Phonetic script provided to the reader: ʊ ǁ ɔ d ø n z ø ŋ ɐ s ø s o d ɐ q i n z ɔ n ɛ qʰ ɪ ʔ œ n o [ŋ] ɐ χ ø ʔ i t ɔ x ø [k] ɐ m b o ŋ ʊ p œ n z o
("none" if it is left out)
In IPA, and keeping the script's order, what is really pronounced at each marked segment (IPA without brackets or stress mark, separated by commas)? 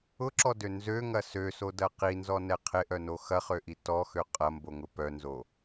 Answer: x, qʼ